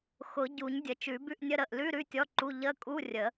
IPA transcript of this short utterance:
x ʊ˨˩˦ ɟ u˨˩˦ ɲ dʲ ə˨˩˦ t͡ʃ ʉ˨˩˦ b ʉ˧˥˧ ʔ nʲ ə˧˥˧ ɾ ə˩˧˩ ʔ l ʉ˧˥˧ ɾ ʉ˧˥˧ tʲ ɔ˧˥˧ ǃ u˧˥˧ ʎ ə˧˥˧ kʼ u˧˥˧ rʲ ə˨˩˦

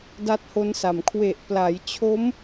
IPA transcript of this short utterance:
d a˦˥ t̚ h o˦˥ n s a˨˩ m kʰ w e˨˩ ʔ p l a˩˦ j t͡ɕʰ o˦˥ m

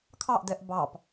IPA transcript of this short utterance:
kʰ ɑ ʔ d ɛ ʔ b ɑ p

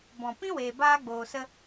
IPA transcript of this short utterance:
b ɔ̃˨ p ĩ˦ w eː˨ b aː˧ ɡ͡b oː˨ s ə˧

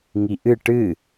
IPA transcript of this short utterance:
ŋ i ʔ ɨ ʈ ɨ

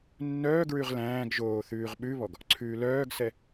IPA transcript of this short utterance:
nː œː ɡ ɹ ʉ ʁ l æ̃ː ɡ ʒ oː θ ʉː ʁ ɓ ʉ β ɔ ɡ | ǀʰ ʉː l œː ɡ s ɛ

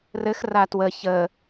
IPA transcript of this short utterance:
r ɘ x r a t w ə ç ə

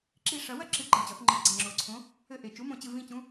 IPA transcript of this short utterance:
ǁ i˦˨ ʂ ɐ˨˩˦ w ɐ˦˨ ǁ ɨ˨˩˦ ɡ͡ǃ ɛ˨˩ t͡ɕ ɔ˨˩˦ θ ŋ͡ǃ ɨ˨˩˦ ɡ͡ǀ ɐ˨˩ ŋ͡ǁ o˨˩ ǀʰ õ˨˥ | ɘ˦˨ ʔ e˨˩ t͡ʃ u˨˥ m õ˨˩ t͡ɕ ɨ˦˨ v ĩ˦˨ t͡ɕ ũ˨˥

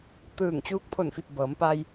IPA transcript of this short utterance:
t̪ ɯː˧˩ ŋ t͡ɕ uː˧˥ k̚ pʰ o˧˩ n f i˧˩ p̚ b ɤː˩˧ m p a˧ j

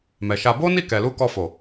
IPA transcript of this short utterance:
m ɛ˨ ʃ a˧ b o˦ n i˦˨ k ɛ˨ l u˧ k ɔ˧ f o˨

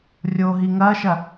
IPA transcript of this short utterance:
rʲ o ɦ i ŋ ɐː ʃ ɐ

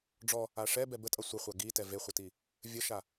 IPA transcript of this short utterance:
ɖ͡ʐ ɔ | a ʂ ɛ b ɛ b ə tʼ ʌ sʷ ə χʷ a ɡ i t ɛ v e χʷ ə t i | vʲ ə ʃ a

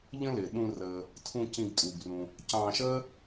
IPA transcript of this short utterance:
ʎ ə̃˥ l ɪː˩ ɗ ũ˨ r əː˩ | tʰ ũ˨ c ĩ˨ ɡ tʼ uː˩ ɡ r ũ˩ | c ɑ̃ː˨ ʃ əː˦

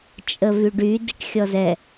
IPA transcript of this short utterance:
t͡ʃʼ ə v y ɖ y d i ʈ xʲ ɔ z ɛ

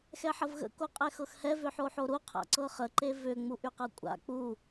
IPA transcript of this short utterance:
x ɛ ħ ə v ɣ ə̰ k o qʼ ɛ x ɤ x h ɛ v ʏ ħ o ħ o ɾ u qʰ a̰ ǀ ɤ χ ə ǃ e v ʏ ŋ͡m u ʔ y q ɤ kʷʼ a̰ k͡p u

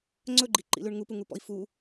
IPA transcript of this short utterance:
ŋ͡ǀ ɵ ɡ͡ǃ i ǃ ḭ l ʉ ɳ ŋ u p u ŋ u p ɔ̰ i̯ f u

